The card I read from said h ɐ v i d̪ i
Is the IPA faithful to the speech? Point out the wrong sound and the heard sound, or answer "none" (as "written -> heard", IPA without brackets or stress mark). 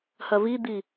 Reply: none